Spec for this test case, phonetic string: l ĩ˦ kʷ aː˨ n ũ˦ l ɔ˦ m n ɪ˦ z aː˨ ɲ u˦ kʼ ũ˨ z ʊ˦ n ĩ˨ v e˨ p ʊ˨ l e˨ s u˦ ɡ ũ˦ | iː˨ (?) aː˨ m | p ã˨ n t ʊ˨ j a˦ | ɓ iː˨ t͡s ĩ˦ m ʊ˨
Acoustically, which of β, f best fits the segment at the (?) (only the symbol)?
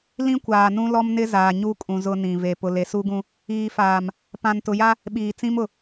f